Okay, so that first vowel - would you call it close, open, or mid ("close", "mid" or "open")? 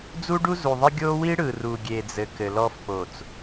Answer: close